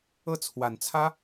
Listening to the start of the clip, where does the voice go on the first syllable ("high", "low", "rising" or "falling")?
falling